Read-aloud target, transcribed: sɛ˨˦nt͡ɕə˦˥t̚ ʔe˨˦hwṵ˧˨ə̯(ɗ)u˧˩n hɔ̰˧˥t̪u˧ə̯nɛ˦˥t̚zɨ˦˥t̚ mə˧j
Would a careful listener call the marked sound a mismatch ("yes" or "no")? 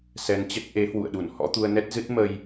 no